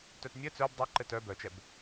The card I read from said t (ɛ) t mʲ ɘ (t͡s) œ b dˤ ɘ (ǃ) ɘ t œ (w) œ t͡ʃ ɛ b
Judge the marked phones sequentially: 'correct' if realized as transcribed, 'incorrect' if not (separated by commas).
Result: incorrect, correct, correct, incorrect